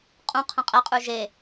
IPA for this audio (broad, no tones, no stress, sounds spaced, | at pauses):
qʼ ũ qʰ ə̃ qʼ ɛ qʼ ʉ ʒ e